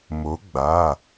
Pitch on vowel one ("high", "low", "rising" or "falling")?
rising